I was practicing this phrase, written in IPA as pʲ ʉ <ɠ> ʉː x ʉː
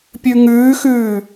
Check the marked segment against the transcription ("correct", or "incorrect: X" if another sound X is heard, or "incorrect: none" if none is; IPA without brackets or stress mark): incorrect: ŋ